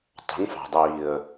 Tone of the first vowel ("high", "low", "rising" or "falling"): rising